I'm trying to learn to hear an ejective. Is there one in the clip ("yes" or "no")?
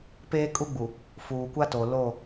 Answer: yes